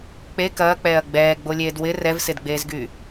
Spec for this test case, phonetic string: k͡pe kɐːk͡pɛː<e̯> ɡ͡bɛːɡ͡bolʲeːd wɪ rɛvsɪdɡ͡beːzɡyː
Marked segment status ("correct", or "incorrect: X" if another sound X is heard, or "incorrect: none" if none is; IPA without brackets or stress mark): incorrect: ɐ̯